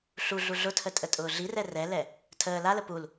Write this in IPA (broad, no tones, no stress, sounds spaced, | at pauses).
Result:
ɬ u ɮ u ɮ ʊ tʰ ə tʼ ə tʼ ʊː ɮ i r ɛ r ɛ l ɛ | tʰ əː l a l ə p u l